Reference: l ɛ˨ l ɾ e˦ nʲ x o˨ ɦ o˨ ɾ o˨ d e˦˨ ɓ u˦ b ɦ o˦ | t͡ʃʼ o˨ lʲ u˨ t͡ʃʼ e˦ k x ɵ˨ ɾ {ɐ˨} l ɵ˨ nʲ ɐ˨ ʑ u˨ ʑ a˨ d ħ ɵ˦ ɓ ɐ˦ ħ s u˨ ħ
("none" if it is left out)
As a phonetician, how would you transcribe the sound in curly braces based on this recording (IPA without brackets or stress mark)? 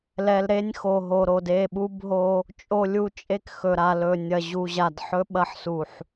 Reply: a˨